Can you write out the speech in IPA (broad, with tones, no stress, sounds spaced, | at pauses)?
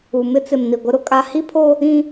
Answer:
u˨ m ɪ˦ t͡s ɪ˨ m n i˨ ɡʷ ɪ˦ ɾ ʊ˦ kʼ a˦ h i˦ pʰ oː˦ | ĩ˦